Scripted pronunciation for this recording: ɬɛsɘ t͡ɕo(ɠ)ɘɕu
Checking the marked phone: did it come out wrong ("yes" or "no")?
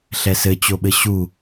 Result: yes